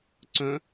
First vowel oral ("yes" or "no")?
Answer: no